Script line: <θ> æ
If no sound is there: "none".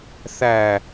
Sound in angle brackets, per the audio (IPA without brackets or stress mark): θ